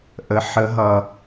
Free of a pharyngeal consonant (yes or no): no